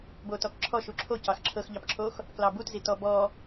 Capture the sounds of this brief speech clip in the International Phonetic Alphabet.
b o t ɔ k ǁʰ ɔ ʃ u ǁʰ o c ɑ x ǁʰ ɤ x ʎ ɑ p ǁʰ o x | k l ɑ b u t z i t ɔ b ɔ

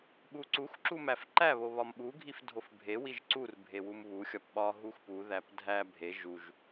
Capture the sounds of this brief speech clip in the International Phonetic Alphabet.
ɓ u ǀ u x ǁ u m æ f ǃ æ β o β ɒ m ɓ u ɡʱ i f dʱ o f bʱ e w i ʒ ǀ u r bʱ e w u m β u xʲ ɒ p ɓ ɒ ɦ u x p u ð æ p dʱ æ bʱ e ʒ u ʒ

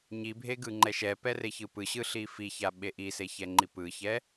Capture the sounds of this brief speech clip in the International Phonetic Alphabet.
ɲ i bʱ e ɡ ɯ ŋ͡ǃ ɛ ʃ ɛ p ɛ r e ç ɯ p ɯ ɕ ɯ ɬ i f i ç a ɓ e ʔ i s e ç ɛ ŋ͡ǃ i p ɯ ç ɛ

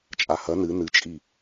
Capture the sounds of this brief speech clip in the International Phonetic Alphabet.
t͡ʃʼ a h ɐ n ɨ n ɨ t͡ʃʼ i

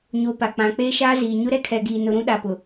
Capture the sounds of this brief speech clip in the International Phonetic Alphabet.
ɲ o˨ p a˨ k͡p ã˨ k͡p eː˦ ʃ aː˦ z iː˨ ɲ ʊ˦ ɾ ɛ˦ kʰ ɛ˨ ɡ iː˨ n ʊ˨ ɾ ũ˦ ɗ a˨ p ʊ˨

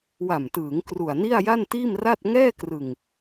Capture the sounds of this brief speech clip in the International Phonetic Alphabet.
w a˨˩ m t ɯː˩˦ ŋ k r u˨˩ a̯ n i˥˩ a̯ j a˥˩ n t iː˥˩ m r a˥˩ t̚ ŋ ɛː˥˩ k r ɯ˨˩ ŋ

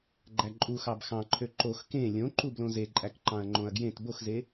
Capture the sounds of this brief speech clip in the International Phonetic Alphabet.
ɡ͡ǃ æ ǃʼ u x ɑ b x ɑ̃ ǃʰ ø ǃ o x k ẽ lʲ õ ǃ u b l õ z e ǃʼ æ k ǃ ɑ̃ ɐ̯ ŋ͡ǃ õ ɐ̯ ɡ j ẽ t b o x z e

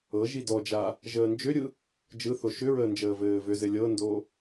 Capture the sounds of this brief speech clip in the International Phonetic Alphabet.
ɤ ʒ i d ɔ d͡ʒ a | ʒ əː n d͡ʒ ʏ ɾʲ ɯ | d͡ʒ ɯ θ o ʃ ʏ ɹ əː n d͡ʒ əː v ɘː v ʏ z ɘ lʲ ɤ n d o

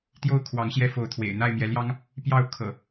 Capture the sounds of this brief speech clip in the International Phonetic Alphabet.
t̪ j o˦ ʊ̯ kʰ w ɑ˨˦ ŋ ɕ j ɛ˦ f o˨˦ ʊ̯ t̪ʰ w ḛ˨˩ ɪ̯ n̪ a˥˨ ɪ̯ m j ɛ˨˦ l j ɑ˦ ŋ | p j ɑ˥˨ ʊ̯ kʰ ɤ̰˨˩

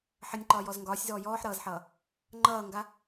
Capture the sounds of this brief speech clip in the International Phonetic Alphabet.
ħ ə nʲ ǃ ɒː j ɔ z ŋ ɡ ɒː sʲ z ɔː j ɔː ħ ɾ ʌː z ħ ʌː | ŋ͡ǃ ʌː ŋ ɡ a

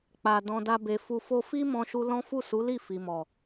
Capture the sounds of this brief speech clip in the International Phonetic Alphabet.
k͡p a˨ d ɔ̃˧ d a˦ b e˧ f u˧ f o˦ f i˦ m ɔ̃˦ ʃ u˦ l ɔ̃˦ f u˦˨ s u˨˦ l i˦˨ f i˨ m ɔ˨

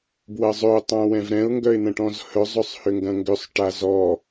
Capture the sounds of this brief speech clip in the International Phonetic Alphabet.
b w ɐ zˤ ʏ ʊ̯ tˤ ã w ɛ̃ v ɾ ɛ̃ ʊ̯ ŋ ɡ œ ɪ̯ n̪ ɐ̃ ʈ ɔ̃ z h œ zˤ ʏ sˤ h ʏ ŋ ɡ ɐ̃ ŋ ɡ ʏ sˤ ʈ a z ɔ

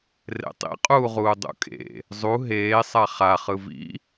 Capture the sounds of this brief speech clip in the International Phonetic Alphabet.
r ḛ tˤ ḭ qʼ uː ʁ uː dˤ ṵ kʼ ḛ | zˤ u ɦ eː sˤ a χ a χ ɯ v ḭ

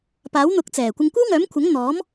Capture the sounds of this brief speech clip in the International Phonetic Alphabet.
p aː˨˥ w n̪ ʊ˨˥ k̚ t͡s ɛː˨˩ kʷ ɪ˧ ŋ kʷ ɐ˥ w ŋ œː˨˥ m kʷʰ ɐ˨˥ ŋ n̪ ɔː˨˥ m

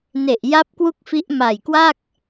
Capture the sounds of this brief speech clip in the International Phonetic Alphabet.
n e˨˩ ʔ j a˦˥ p̚ k w u˥˩ k̚ f i˦˥ ʔ m a˨˩ j k w a˥˩ k̚

